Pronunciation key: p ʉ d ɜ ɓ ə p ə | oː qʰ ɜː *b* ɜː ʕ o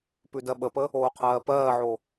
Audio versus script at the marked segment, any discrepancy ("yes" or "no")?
yes